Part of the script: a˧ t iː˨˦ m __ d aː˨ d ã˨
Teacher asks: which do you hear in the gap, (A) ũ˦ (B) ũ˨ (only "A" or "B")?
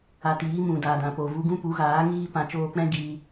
B